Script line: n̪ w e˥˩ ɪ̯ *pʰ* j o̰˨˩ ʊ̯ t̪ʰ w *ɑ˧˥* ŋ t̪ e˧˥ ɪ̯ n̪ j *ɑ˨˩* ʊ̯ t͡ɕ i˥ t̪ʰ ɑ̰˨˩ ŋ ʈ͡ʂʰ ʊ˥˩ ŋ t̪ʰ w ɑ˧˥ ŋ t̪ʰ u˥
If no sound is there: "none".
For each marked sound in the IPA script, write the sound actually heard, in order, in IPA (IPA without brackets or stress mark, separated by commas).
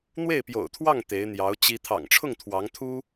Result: p, ɑ˥˩, ɑ˧˥